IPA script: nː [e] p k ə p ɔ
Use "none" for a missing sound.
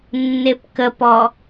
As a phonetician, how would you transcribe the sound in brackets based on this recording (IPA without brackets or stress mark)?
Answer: e